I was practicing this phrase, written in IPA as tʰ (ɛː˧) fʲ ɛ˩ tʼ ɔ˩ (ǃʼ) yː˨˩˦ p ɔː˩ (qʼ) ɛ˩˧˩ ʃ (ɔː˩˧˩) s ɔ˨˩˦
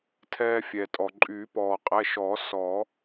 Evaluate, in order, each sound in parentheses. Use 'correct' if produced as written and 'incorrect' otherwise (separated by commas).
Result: correct, correct, correct, incorrect